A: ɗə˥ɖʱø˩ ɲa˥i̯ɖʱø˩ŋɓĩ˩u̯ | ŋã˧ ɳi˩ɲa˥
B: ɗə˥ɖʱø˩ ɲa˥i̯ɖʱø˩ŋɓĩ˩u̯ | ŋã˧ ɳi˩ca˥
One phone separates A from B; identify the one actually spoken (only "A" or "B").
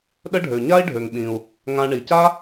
B